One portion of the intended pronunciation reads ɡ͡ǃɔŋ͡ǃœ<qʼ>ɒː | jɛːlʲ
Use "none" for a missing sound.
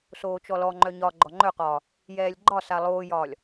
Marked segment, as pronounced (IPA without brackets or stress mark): q